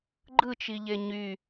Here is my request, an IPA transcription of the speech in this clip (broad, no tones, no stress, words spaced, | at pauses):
ɡ͡ǃɯt͡ʃiʎe ɲy